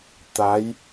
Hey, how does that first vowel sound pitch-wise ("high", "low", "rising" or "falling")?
rising